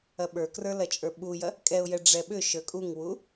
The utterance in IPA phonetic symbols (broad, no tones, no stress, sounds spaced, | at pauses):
ɐ ɓ ə˞ k r ə˞ l ɐ t͡ʃʼ ə˞ ɓ u j ɐ | kʼ ɛ ʊ̯ j ɛ ɖ͡ʐ ɛ ɓ ʏ ʃ ə˞ kʼ u ŋ w u